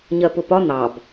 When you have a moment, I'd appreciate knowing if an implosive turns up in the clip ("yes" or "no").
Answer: no